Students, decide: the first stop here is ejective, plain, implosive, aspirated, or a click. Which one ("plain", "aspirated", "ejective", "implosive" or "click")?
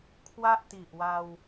aspirated